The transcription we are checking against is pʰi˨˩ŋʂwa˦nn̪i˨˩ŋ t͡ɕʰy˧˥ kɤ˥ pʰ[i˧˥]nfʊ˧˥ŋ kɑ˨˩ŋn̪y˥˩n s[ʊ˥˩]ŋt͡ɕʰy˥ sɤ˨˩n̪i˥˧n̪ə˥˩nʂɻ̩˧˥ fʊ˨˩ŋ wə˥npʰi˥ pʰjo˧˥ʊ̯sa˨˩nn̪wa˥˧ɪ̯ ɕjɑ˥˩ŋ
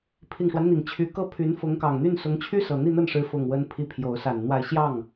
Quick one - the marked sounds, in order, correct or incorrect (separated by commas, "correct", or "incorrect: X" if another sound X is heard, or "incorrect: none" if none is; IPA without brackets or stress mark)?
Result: incorrect: y˧˥, incorrect: ʊ˧˥